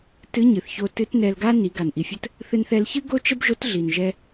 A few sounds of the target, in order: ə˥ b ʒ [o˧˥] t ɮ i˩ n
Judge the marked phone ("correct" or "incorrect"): correct